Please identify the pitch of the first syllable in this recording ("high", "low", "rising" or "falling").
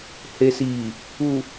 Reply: low